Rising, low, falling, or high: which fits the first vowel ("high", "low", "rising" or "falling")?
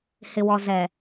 low